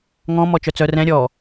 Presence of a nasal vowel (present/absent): present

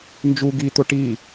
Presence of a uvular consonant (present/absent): absent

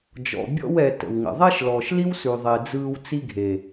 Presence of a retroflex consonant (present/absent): absent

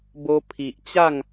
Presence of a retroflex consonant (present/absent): absent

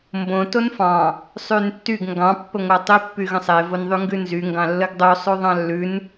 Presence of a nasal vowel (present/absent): present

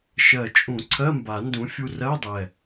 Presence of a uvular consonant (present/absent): absent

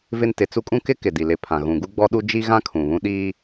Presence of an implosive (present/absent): present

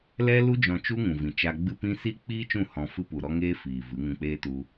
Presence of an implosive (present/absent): absent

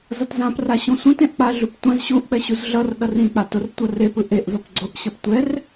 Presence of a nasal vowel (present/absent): present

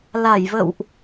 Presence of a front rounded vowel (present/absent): absent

